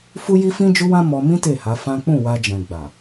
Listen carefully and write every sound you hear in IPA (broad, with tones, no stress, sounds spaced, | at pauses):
f u˦ j i˦ f ĩ˦ d͡ʒ u˦ w ã˦ m ɔ˧ m ĩ˦ t e˦˨ h a˨˦ f ã˦ k͡p ũ˦˨ w a˧ d͡ʒ ɛ̃˨ ɡ͡b a˨